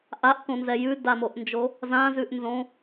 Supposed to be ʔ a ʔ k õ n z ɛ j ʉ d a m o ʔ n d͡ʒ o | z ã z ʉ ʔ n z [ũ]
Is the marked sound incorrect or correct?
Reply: incorrect